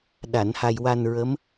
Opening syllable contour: low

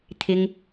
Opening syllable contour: high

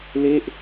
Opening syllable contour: falling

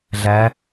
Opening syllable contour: rising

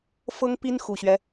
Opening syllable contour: high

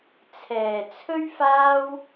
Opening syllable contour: low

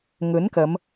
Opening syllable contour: rising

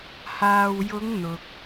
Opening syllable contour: low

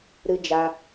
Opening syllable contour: high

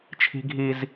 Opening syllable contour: high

